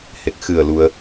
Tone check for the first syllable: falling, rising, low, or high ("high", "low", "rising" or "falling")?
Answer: low